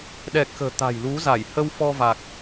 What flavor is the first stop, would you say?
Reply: implosive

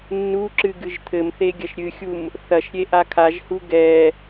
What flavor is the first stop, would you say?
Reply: click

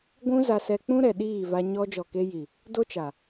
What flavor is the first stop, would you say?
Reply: plain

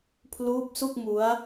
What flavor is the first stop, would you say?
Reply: aspirated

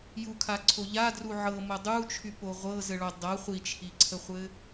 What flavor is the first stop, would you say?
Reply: aspirated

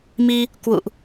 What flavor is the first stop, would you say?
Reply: plain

